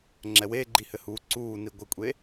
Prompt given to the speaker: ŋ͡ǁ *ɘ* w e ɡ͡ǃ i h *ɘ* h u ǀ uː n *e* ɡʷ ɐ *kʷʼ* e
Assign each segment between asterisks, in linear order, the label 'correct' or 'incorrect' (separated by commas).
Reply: incorrect, correct, incorrect, correct